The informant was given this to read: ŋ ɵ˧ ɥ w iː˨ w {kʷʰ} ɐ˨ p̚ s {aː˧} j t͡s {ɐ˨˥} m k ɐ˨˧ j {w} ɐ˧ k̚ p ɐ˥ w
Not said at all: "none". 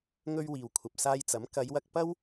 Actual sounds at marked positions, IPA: kʷʰ, aː˧, ɐ˨˥, w

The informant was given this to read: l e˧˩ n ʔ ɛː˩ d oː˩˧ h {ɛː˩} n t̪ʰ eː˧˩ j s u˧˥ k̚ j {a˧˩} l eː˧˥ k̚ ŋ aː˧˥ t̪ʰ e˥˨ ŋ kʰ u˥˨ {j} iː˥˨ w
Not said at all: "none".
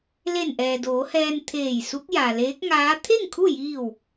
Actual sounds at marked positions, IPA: ɛː˧, a˩, j

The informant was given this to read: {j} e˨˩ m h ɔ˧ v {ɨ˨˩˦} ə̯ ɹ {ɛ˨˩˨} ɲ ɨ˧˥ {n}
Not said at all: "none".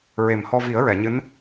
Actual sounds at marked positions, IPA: ɹ, i˨˩˦, ɛ˨˩˨, n

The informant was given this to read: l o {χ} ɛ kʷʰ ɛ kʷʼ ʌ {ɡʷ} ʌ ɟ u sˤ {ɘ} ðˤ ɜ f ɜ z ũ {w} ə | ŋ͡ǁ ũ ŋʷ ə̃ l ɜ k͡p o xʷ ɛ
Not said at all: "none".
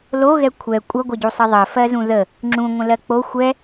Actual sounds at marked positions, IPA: ɣ, ɡʷ, ɘ, ð

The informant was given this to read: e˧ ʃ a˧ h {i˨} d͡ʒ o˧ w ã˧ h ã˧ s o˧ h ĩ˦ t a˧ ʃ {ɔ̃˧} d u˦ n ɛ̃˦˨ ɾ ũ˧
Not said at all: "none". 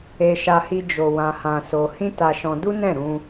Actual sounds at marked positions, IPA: i˧, ɔ̃˧

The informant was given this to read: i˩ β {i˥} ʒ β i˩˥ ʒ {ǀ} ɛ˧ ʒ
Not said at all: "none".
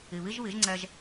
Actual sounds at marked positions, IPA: i˥, ŋ͡ǀ

